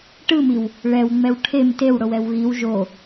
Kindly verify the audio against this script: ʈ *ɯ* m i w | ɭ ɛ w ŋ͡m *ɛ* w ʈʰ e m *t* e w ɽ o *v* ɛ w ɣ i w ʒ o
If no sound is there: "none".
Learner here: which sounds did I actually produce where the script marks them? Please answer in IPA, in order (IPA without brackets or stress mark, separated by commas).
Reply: ɯ, ɛ, t, w